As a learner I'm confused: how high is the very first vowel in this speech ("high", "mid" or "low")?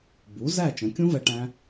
high